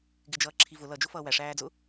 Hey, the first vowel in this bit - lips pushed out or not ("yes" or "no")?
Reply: no